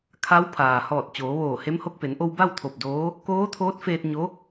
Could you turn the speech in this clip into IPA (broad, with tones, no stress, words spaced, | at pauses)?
kʰa˧˥w pʰaː˩hɔː˧˩t̚ t͡ɕoː˩˧ʋoː˧˩he˧˥mho˧k̚ pe˩˧nʔo˧w ba˥˨wt̪ʰo˧˩p̚doː˧˥ | koː˧˥t̪ʰoː˧˥t̚feː˧t̚ ɲo˧˥